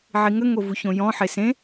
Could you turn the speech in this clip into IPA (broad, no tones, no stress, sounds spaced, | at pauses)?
ʕ i ŋ ə ŋ o v u ç õ j ɔ̃ ħ e s ẽ